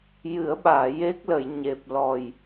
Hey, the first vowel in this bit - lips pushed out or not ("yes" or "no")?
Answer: no